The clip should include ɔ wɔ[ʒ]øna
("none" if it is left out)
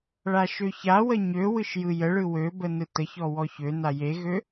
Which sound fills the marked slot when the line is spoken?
ç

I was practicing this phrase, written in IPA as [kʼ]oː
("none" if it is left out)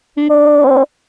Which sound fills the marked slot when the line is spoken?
ŋ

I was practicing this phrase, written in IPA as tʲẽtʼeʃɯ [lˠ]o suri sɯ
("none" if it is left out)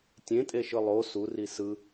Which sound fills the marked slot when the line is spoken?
lˠ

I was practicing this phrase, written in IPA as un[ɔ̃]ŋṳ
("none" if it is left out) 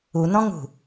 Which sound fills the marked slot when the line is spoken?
ɔ̃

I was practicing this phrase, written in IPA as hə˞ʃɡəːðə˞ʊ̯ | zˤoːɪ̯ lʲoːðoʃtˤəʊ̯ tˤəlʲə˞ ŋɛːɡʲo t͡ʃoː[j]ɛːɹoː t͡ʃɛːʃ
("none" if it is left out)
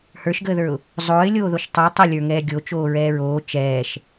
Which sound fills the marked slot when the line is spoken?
ɹ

